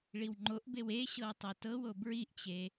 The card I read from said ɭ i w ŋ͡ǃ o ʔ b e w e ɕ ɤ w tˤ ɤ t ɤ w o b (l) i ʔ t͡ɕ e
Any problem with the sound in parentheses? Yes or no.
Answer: yes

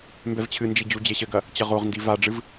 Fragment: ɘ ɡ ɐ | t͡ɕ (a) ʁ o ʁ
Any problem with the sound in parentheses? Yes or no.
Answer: yes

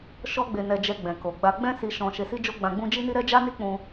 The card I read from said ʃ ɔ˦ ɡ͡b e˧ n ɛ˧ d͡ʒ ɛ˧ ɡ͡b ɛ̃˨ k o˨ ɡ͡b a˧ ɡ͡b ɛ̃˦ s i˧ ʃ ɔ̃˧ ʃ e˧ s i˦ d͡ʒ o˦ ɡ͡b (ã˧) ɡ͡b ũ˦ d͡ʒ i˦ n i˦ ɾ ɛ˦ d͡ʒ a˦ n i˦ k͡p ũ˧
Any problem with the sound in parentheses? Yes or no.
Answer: no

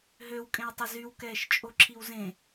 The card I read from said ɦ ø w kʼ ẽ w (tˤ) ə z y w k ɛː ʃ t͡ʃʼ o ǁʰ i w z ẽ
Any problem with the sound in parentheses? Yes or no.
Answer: no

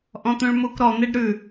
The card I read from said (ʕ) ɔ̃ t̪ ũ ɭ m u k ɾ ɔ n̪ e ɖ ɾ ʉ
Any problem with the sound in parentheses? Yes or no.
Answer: yes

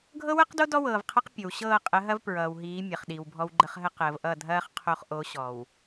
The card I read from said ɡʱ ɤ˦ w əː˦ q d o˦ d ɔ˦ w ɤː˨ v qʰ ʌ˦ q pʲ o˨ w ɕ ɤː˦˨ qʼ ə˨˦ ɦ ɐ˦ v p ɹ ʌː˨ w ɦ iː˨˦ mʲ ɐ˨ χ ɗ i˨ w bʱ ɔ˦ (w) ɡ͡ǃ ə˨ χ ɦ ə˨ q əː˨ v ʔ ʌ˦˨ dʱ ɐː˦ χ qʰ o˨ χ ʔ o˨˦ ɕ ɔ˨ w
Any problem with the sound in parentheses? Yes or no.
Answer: no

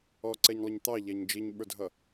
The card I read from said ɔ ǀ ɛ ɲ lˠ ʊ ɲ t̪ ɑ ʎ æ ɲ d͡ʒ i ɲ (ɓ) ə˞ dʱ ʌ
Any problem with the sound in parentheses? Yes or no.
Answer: no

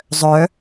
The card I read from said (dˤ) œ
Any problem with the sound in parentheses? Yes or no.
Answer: yes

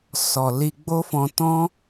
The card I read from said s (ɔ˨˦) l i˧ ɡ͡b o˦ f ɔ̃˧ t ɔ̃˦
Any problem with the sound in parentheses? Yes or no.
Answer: yes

